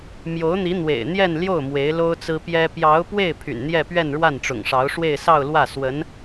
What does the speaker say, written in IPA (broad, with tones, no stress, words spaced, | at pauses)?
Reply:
mjo˧˥ʊ̯n̪i˧˥ n̪wḛ˨˩ɪ̯n̪jɛ˥˧nljo˥˩ʊ̯ mwe˧˥ɪ̯lo˥ʊ̯t͡sɹ̩˥ pjɛ˥ pjɑ˧˥ʊ̯pwe˥˩ɪ̯ pʰy̰˨˩nn̪jɛ˥˧ pɥɛ˥˧nɻwa˥˩nʈ͡ʂʊ̰˨˩ŋʂɑ˧˥ʊ̯ ʂwe˥˧ɪ̯sɑ˥˧ʊ̯lwä˥˩ swə˧˥n